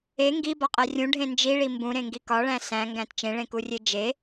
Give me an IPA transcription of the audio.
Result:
e ŋ ɡ i b ɒ qʼ æ rʲ ũ ɖʱ ẽ n d͡ʒ i ɭ i m b ũ ɾ ẽ ŋ ɡ i k ɒ ɭ æ̃ s æ̃ ŋ ɡ æ̃ t t͡ʃ ẽ ɭ ẽ k u rʲ e d͡ʒ e

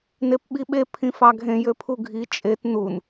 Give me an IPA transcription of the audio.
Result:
n e p ɓ i ɓ e pʰ ĩ f ɑ ɡʱ ẽ j ø pʰ u ɡʱ i t͡ʃʼ e t n u n

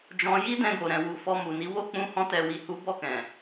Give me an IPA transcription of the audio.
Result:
d͡ʒ ɔ̃˧ j i˦ d ɛ̃˧ ɡ o˨ ɾ ɛ̃˨ w u˨ f ɔ˧ m u˨ n i˨˦ w o˦˨ k͡p ũ˧ h ɔ̃˧ t ɛ˨ w i˨ h u˨˦ b ɔ˦˨ k ɛ̃˨

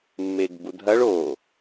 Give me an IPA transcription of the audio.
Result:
mː e ɡ b u dʱ ɐ ɭ o

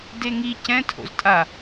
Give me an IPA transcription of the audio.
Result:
d e ŋ i c ɛ̃ tʰ o̰ z tʼ a

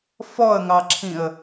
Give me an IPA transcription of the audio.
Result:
f ɔ ə̯ ŋ ɑ ǁʰ ĩ ə̯

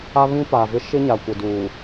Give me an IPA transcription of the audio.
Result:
a˦ β ĩ˦ p a˨ v ɪ˦ ʃ ɪ˦ ɲ a˨ kʷ ɪ˨ d uː˨

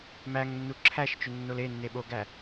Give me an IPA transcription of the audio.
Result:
m æ ŋ nː u ǁʰ æ ʃ t͡ʃ ʏ nː o l e nː e ɓ o ɡ æ

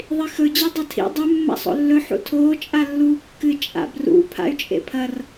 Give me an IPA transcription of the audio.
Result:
ðˤ i x ɵ d͡ʑ e dˤ ɐ tʰ ḭ dˤ ʉ mː a̰ sˤ o̰ lː ɵ ħ ṵ tʰ oː t͡ʃʼ a lː uː kː ɨ t͡ʃʼ a̰ b r ṵ pʰ a̰ y̯ t͡ʃʼ ḛ pʰ ɐ r

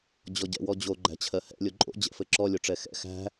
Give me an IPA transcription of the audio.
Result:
d͡ʑ ɔ ɟ ɛ̰ w ɔ d͡ʑ o ɡ͡ǃ æ̤ t͡ɕʰ ɜ h ɛ̰ lʲ o ǃʼ o̰ d͡ʑ ɛ̰ f ɘ ǁ ɔ lʲ o ʈ͡ʂ ɛ x ɛ̰ x æ̤

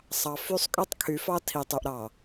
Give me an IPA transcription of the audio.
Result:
sˤ ɑ˨ f y˦˨ sˤ kʼ y˦ tˤ kʰ y˨˦ f ɑ˦ tʰ i˨ tˤ y˨ ʔ ɾ ɑ˨

